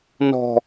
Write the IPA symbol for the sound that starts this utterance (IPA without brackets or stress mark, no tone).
n